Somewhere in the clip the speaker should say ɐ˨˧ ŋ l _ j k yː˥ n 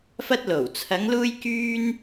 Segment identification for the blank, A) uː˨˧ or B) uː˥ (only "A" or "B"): B